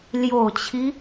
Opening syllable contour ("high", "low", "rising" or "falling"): low